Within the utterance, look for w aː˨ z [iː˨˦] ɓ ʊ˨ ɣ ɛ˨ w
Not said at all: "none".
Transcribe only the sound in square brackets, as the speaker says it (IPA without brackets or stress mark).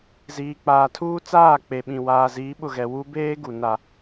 iː˨˦